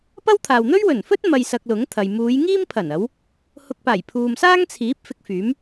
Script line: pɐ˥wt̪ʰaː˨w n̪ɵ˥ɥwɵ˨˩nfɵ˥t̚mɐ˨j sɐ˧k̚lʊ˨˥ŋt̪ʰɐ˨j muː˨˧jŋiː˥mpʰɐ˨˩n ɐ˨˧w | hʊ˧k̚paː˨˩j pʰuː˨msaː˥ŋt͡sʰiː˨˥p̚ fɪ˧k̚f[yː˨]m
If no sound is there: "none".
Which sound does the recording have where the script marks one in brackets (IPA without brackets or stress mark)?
yː˨˥